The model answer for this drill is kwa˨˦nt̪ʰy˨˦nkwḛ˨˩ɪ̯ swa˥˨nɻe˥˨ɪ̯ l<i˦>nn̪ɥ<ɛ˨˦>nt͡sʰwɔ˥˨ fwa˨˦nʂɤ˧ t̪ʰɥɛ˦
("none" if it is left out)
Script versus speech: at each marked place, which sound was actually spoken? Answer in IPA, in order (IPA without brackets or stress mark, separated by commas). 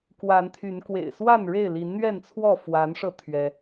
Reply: i˨˦, ɛ˥˨